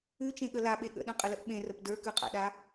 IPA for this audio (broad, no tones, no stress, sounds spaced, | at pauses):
ʉ t͡ʃ ẽ ɠ ə l a ɓ e ɠ ə̰ ɗ œ̃ qʼ ə l ə ʔ ɓ ẽ r ə p d ə˞ k ʉ qʼ a̰ ɗ a